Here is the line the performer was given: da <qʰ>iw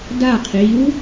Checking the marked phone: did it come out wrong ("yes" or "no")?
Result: no